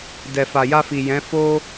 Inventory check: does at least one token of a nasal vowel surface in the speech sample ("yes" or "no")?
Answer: yes